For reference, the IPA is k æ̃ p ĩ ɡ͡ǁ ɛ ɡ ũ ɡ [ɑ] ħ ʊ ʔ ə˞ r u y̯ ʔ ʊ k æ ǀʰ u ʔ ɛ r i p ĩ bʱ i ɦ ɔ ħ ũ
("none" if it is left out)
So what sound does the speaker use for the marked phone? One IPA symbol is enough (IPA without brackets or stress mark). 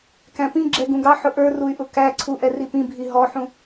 ɑ